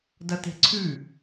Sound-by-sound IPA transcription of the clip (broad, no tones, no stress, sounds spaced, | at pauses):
d ɐ t e̤ ǀʰ ʉ